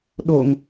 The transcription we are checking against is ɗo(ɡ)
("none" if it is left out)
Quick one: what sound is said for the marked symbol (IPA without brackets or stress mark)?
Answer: ŋ